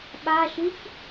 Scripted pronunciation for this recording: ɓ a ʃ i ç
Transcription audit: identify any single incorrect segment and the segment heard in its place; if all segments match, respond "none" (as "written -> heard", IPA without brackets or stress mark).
none